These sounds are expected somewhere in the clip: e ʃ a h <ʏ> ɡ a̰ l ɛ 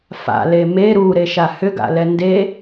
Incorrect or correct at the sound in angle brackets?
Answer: correct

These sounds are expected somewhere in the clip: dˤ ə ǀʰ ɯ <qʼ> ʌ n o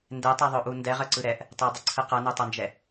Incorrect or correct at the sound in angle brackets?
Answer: incorrect: q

